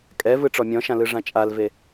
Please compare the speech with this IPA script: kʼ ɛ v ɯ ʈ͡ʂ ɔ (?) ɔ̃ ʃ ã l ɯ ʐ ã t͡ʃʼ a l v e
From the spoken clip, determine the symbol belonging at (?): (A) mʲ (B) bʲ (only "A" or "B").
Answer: A